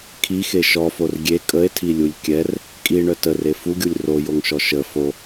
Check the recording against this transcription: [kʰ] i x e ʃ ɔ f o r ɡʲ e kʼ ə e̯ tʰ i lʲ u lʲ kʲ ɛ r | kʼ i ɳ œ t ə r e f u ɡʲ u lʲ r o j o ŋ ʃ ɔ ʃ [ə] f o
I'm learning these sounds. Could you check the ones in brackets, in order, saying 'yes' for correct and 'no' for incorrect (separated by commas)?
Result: yes, yes